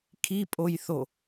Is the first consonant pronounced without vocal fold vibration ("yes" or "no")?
yes